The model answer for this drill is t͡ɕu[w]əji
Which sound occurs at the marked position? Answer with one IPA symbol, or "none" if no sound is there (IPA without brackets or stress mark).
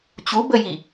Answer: b